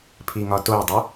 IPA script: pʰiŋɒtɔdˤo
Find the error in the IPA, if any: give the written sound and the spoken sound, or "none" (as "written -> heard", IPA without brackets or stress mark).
ɔ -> o